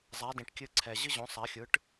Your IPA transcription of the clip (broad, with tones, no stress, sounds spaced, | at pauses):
zˤ a˩˥ d ĩ˩ ʈ kʲ ɨ˧ ǀʰ ɛ˩ ʑ ɨ˥ ʑ õ˩˥ sˤ a˩˥ xʲ ɯ˩˥ ʈ